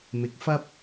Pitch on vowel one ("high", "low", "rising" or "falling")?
rising